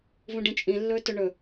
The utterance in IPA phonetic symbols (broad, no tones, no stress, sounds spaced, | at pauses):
v ũ ɖ ĩ t͡ʃʼ ĩ lː ɵː t ɵ ɳ ɵ